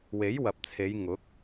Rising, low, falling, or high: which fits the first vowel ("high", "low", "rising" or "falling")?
rising